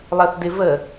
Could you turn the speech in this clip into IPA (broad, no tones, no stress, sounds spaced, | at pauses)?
lˠ ɜ θ d ɪ v ə